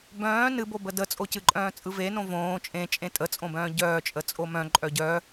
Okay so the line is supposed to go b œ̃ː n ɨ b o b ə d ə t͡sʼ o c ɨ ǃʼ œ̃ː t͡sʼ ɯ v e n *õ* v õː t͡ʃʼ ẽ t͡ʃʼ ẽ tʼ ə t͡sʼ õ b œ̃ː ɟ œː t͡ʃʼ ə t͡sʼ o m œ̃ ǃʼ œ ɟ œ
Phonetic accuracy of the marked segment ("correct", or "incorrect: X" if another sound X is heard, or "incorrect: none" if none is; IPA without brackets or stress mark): correct